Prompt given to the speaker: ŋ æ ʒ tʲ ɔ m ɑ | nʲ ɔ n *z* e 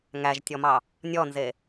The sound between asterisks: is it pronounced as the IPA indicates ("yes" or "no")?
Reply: yes